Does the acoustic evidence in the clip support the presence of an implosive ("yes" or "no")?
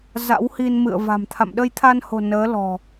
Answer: yes